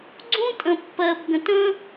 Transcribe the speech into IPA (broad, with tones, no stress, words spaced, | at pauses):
ɡ͡ǀũ˦ tʼə̃˨pːɜ˨bɡə̃˨t ə̃˦